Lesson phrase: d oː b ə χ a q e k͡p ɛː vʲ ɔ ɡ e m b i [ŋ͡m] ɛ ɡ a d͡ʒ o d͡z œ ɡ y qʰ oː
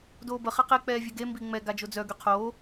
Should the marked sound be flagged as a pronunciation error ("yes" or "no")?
no